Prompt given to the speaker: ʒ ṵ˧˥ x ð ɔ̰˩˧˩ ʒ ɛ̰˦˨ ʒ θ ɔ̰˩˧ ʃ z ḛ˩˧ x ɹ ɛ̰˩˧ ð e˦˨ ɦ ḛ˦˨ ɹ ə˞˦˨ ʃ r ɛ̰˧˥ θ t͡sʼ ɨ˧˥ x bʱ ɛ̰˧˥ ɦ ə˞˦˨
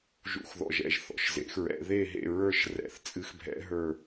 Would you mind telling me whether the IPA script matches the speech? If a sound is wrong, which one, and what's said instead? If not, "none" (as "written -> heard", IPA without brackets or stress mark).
none